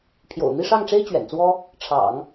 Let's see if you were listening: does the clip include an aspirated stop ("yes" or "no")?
yes